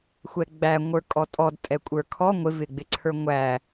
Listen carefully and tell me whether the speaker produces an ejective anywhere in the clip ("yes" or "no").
yes